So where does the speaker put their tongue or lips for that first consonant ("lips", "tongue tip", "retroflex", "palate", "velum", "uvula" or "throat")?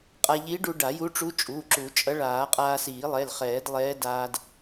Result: uvula